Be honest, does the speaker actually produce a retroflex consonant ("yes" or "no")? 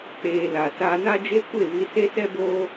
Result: no